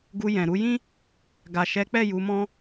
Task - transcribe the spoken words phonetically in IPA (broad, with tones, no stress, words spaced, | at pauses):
ɡu˧jɛ̃˨ɾu˧jĩ˦ | ɡa˨ʃɛ˨˦k͡pɛ˦˨ ju˨˦mɔ̃˦